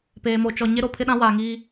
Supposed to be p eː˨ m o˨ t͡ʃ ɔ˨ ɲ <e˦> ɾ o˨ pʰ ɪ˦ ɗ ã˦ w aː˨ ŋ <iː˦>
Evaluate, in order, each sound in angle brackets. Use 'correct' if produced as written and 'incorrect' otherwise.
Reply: correct, correct

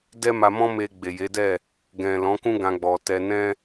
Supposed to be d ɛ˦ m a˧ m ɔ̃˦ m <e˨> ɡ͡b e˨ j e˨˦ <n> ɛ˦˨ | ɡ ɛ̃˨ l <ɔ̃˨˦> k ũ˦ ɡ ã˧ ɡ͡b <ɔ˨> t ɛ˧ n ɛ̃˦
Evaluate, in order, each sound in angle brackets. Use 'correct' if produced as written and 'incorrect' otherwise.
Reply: incorrect: e˧, incorrect: d, correct, correct

